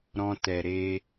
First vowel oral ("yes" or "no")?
no